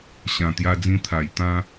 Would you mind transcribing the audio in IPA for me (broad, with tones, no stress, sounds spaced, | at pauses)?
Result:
ɕ ã˨˩ t̪ j a˧ d͡z ĩ˧ t̪ʰ a˨˩ j t̪ ã˦